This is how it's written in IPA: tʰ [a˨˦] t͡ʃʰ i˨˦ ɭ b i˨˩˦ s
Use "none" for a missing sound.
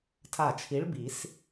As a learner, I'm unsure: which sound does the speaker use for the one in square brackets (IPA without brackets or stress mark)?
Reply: a˧˩